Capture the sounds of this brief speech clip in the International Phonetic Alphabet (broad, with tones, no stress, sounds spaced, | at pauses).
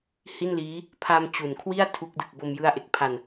h i˥˩ n l iː˦˥ | pʰ a˧ m t͡ɕ u˨˩ n kʰ w i˥˩ a̯ tʰ u˦˥ k̚ d ɯ˨˩ k̚ b o˧ m j ɯ˦˥ a̯ ʔ e˨˩ k̚ pʰ a˧ n